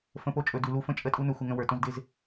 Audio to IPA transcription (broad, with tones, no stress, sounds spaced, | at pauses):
f ə̃˦ p o˦ t͡ʃʼ ɵ˧ d ʉ˧ l u˦ f ə̃˦ t͡ʃʼ ə˦ tʼ u˦ n ɵ˦ xʷ ɪ˦ ŋ ə̃˦ w ə˞˧ t õ˦ z d ɪ˦ z